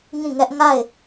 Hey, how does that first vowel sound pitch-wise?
falling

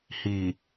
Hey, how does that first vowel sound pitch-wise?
low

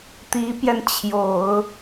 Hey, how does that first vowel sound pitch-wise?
rising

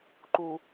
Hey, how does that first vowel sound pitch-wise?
low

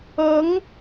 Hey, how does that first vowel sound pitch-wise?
rising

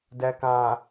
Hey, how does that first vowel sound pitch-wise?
low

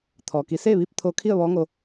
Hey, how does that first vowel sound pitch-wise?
low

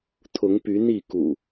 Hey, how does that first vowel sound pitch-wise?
rising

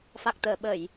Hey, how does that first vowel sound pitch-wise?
low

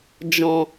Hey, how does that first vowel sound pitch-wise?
low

